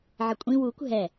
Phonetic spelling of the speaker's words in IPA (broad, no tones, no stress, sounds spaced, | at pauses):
ʕ ə kʷʼ ĩ w u kʷ ɦ ɛ